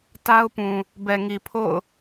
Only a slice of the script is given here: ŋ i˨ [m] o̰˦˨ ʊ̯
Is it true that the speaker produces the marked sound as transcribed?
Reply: no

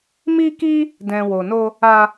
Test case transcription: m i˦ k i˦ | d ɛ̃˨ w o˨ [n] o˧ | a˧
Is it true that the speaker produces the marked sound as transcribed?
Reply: yes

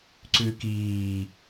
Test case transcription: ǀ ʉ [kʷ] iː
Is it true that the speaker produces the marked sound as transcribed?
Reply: no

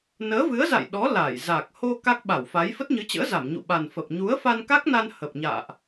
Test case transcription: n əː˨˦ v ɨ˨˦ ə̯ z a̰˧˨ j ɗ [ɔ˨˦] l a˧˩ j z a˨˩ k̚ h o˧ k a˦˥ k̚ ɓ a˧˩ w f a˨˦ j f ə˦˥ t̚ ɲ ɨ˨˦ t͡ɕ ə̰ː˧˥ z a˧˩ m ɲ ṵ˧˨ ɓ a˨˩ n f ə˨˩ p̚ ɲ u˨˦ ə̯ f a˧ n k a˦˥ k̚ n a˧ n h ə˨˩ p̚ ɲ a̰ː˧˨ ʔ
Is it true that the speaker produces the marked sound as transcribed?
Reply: yes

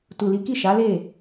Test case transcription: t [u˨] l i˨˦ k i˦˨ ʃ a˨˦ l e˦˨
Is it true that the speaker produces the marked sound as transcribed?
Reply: yes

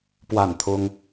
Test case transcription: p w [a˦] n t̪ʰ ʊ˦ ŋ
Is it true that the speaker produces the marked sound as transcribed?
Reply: no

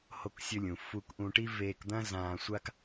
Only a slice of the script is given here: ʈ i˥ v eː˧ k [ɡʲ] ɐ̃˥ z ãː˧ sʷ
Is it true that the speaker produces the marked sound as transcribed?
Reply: no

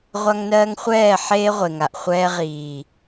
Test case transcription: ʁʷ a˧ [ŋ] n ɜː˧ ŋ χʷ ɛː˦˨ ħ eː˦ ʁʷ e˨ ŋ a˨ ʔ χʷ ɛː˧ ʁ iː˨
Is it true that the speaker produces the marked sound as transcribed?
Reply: yes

